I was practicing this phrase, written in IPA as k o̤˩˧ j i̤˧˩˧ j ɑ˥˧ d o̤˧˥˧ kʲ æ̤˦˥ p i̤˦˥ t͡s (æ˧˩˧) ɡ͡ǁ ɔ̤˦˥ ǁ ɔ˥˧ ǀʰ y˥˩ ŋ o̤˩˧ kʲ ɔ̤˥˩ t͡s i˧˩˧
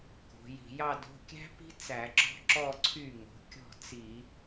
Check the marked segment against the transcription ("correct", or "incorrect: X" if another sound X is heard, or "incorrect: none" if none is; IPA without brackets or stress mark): correct